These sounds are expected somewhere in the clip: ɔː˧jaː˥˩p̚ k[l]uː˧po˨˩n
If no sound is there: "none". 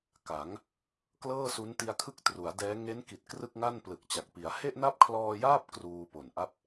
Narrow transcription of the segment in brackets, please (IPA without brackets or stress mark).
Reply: r